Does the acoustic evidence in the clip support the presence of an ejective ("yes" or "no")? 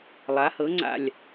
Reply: no